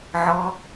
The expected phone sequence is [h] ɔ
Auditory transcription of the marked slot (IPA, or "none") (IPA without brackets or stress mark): ʕ